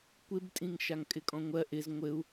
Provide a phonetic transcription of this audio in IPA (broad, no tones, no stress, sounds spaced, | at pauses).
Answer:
kʷ ɪ b tʼ ĩ ŋ ʃ a ŋ kʼ ɪ kʼ ɔ̃ ŋʷ ɜ ʔ ɪ z ŋʷ ɘ u̯